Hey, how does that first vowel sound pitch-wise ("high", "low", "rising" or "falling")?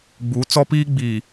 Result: rising